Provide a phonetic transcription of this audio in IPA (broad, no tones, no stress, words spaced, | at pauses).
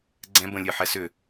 ɡ͡ǀɛ̃ bə̃ lʲɨ ħɛsʏ